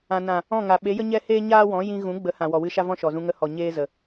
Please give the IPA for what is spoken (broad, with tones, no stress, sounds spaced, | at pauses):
ã˨ n ã˨ | ɔ̃˦˨ ŋ a˨ ɓ e˨˦ j ə˦ ɲ ɛ˦ h eː˦ ɲ aː˦ w ɔ̃˨˦ j ĩ˧ ɣ ũ˨˦ ɡ͡b ə˨˦ h ã˨ w ɔ˨ w ɨ˧ ʃ a˦ v ɔ̃˦ ʃ ɔ˨ z ũ˧ ŋ ə˧ h ɔ˨ ɲ eː˦ z ə˨